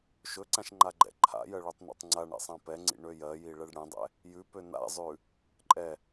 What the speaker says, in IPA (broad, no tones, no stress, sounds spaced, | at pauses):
ʃ ɵ ǀ ã ʃ ŋ͡ǃ a ɡ͡ǃ ɛ̰ ǃʰ a̰ j ɜ ɭ ʉ tˤ n ɛ̰ tˤ ŋ͡ǀ a ɳ ɛ̰ sˤ ã p ɛ ŋ͡ǀ ḭ ɳ ø j ɜ j i ɭ ɛ ɖ ɽ ɛ̃ dˤ ɛ̰ | j ʉ p ø n a̰ zˤ ʉ | ǃʼ ɛ